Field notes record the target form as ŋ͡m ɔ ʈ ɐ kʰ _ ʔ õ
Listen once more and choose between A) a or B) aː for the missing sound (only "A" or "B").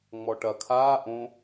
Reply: B